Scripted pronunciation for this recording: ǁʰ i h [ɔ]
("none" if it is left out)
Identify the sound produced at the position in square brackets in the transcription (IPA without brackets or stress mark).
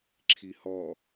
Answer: ɔ